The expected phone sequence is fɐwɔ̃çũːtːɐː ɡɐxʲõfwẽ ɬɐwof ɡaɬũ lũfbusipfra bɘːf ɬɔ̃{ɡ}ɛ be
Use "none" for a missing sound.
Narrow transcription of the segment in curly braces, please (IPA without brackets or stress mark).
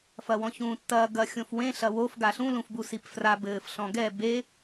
ɡ